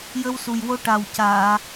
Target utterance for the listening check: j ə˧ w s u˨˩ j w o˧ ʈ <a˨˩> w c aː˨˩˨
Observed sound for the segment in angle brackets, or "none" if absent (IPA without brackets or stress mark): a˨˩